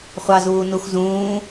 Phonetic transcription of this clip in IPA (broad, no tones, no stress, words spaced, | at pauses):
χʷɑzuː nuxzũː